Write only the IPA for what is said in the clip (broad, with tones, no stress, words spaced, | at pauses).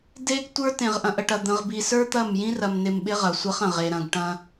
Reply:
de˦ɡ tʷə˞˦tẽ˨ʁ ʔɐ̃˨ʔə˨ʈɐ˨ d̪ə̃˨ʁbi˨ sə˞˦t̪ɐ˦˨m jĩ˦rɐ˨mnɪ˨m ɓɪ˦ʁɐ˨sʷɐ˦χɐ̃˨ʁ e˨ɾɐ̃˨ɡʈɐ̃˦